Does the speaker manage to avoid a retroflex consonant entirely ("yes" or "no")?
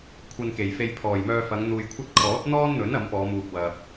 yes